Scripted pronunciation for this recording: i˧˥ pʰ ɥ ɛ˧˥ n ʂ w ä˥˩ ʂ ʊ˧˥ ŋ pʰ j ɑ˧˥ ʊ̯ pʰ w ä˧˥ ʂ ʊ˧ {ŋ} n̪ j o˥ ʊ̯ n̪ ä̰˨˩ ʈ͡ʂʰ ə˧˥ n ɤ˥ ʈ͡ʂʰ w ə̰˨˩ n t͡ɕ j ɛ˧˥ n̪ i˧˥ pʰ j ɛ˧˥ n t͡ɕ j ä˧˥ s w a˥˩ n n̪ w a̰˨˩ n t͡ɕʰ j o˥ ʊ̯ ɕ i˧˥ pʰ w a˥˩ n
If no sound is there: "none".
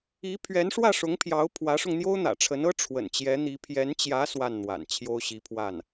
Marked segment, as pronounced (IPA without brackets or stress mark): ŋ